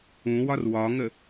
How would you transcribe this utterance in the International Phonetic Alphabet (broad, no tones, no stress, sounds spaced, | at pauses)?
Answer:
ũ w ɒ r w ɒ ŋ ə